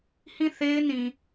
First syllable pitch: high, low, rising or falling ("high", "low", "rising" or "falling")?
falling